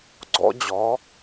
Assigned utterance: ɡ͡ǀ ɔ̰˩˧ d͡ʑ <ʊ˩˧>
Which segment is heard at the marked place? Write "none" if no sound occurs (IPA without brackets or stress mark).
ɔ˩˧